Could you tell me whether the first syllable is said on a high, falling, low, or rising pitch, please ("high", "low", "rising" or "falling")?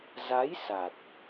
rising